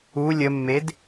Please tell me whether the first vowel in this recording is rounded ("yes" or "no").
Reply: yes